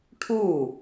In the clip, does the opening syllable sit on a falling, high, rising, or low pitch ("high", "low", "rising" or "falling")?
falling